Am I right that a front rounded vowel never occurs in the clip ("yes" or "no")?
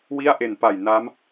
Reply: yes